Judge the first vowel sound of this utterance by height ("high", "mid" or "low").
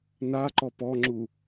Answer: low